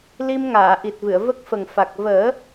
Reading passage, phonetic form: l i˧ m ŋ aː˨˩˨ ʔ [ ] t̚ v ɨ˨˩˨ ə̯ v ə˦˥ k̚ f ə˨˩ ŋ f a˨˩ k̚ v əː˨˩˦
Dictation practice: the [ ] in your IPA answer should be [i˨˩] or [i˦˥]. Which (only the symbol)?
i˨˩